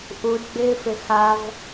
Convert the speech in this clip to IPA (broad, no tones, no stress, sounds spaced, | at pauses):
ʔ u d ɡ͡b ɪː f ɪ x a v